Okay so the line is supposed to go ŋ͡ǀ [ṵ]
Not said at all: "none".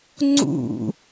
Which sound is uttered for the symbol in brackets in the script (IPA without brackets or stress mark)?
ṵ